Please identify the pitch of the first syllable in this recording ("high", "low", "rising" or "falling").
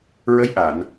rising